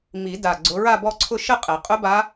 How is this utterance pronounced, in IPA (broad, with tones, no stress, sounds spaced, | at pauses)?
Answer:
m i˨˩˦ d a˨˩ ɡ͡ǀ ʊ˨˦ ɹ a˥˧ b ɔ˥˧ ǀʰ ʊ˥˧ ʃ ə˥˧ qʼ ɛ˨˩˦ qʼ ʊ˦˥ b a˦˥